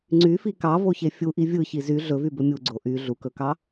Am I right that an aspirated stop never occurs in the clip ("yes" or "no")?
yes